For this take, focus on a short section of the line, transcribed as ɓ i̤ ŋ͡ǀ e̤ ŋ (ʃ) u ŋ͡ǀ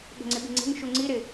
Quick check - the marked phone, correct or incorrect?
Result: correct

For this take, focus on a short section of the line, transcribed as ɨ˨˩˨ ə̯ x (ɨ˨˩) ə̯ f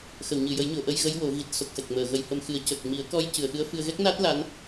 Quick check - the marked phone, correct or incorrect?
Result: incorrect: ɨ˧˥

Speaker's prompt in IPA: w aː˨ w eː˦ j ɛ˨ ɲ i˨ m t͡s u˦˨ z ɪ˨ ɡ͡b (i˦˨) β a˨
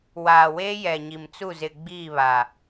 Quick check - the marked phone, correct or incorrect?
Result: incorrect: iː˦˨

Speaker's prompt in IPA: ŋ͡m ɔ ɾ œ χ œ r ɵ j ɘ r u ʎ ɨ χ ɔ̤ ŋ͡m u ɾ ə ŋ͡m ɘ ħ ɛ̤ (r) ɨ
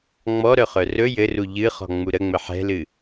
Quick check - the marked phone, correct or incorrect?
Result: incorrect: l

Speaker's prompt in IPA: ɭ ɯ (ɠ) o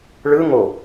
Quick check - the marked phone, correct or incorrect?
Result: incorrect: ŋ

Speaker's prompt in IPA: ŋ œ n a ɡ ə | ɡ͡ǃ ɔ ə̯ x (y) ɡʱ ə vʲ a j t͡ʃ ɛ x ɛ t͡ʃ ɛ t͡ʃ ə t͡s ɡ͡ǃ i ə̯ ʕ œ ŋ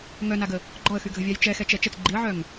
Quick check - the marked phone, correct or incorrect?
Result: correct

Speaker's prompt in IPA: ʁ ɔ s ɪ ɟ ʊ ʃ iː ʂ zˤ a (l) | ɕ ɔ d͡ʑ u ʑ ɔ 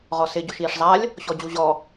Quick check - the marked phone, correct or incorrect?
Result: incorrect: lʲ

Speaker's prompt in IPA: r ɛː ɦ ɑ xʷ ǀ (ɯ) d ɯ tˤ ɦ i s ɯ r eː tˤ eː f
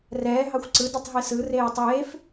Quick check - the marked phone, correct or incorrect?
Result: correct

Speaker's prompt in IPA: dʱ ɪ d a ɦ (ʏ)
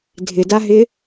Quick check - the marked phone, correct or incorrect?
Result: incorrect: ɪ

